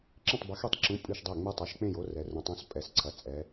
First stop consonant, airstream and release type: click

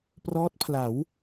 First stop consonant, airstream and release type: plain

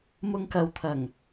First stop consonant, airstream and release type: plain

